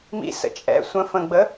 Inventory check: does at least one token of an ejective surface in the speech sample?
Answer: yes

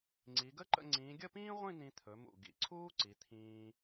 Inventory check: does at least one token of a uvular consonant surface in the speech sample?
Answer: yes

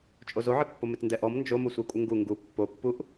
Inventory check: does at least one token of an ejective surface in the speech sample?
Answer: yes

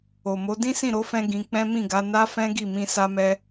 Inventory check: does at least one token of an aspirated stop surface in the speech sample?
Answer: no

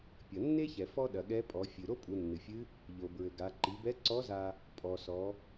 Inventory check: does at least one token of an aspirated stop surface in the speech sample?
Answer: no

